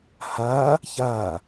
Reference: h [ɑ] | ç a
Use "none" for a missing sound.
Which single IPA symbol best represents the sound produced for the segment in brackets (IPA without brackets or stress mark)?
a